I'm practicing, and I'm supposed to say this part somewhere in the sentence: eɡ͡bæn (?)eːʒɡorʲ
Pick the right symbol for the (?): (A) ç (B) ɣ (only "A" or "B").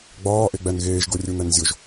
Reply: B